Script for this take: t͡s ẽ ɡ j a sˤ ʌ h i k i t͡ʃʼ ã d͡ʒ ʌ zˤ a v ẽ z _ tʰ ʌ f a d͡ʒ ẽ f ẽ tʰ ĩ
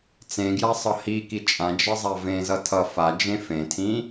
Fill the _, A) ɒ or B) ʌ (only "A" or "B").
B